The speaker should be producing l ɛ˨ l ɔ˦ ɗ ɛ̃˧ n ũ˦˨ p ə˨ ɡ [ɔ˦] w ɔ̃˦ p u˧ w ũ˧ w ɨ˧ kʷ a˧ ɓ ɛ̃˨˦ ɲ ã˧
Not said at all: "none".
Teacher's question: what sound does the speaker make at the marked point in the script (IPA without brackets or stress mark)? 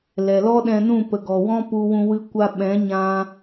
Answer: ɔ˨